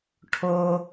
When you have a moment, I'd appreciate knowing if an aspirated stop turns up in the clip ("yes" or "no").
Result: yes